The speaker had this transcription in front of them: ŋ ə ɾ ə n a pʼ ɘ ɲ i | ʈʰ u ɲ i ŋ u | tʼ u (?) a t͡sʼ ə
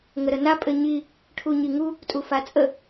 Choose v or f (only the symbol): f